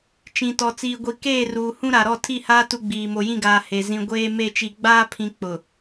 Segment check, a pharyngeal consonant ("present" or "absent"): absent